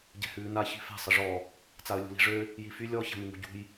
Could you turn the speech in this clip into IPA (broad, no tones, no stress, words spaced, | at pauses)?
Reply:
ɟɛ̤hʉːna çi̤fɛ̤ sˤəʐɔ | t͡saə̯lʲṳli̤ʐø | jify lʲɔ ça̤mʉŋṳɟṳj